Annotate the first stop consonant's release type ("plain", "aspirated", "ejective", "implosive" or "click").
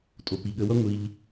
ejective